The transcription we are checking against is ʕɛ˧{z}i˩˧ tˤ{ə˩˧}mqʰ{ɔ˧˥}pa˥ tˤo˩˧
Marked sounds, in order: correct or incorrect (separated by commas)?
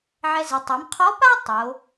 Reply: correct, incorrect, correct